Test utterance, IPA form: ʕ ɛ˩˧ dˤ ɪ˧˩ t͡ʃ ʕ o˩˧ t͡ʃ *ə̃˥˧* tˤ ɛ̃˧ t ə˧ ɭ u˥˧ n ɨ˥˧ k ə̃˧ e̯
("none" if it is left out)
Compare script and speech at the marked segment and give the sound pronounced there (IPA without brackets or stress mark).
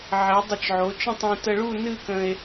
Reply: ə̃˥˧